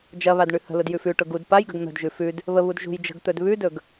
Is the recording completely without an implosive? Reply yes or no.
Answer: yes